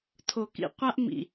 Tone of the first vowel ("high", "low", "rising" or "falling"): low